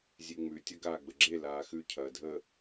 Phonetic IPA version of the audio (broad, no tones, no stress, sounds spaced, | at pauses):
zʲ e ŋ͡m ʉ tʲ ɐ ɡ aː ɡ͡b ə ɡ͡ǁ e l aː x ʉ cʰ ɐː dʱ ə